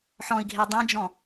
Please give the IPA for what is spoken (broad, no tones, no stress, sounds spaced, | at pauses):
ħ ɔ̃ i̯ ɡʱ e dˤ ẽ d͡ʒ ɔ̃